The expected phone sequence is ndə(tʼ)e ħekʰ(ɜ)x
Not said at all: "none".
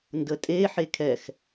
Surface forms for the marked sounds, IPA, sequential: tʼ, ɛ

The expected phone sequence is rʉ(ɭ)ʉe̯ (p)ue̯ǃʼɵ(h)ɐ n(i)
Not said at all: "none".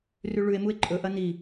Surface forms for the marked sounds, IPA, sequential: ɭ, m, ʔ, i

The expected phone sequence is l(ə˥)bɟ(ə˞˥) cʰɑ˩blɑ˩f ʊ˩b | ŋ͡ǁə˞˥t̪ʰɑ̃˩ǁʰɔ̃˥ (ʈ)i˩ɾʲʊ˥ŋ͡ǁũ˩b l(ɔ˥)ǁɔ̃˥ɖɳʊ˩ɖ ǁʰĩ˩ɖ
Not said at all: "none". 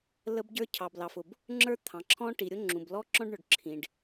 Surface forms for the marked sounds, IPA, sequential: ə˥, ə˞˥, ʈ, ɔ˥

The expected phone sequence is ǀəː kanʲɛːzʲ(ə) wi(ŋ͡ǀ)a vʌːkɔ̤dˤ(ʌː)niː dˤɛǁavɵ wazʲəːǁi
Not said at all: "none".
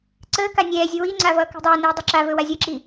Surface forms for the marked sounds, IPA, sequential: ə, ŋ͡ǀ, əː

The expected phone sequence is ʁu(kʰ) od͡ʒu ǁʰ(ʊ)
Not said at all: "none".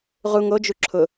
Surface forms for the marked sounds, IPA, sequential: ŋ, ʊ

